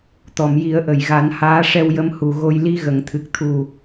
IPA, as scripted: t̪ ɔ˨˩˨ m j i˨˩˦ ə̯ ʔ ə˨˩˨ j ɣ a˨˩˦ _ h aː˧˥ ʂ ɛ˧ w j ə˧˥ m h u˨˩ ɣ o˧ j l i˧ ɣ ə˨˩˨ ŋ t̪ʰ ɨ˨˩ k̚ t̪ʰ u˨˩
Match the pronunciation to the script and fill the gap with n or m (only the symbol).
n